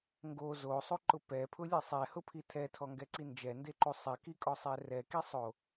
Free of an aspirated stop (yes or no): no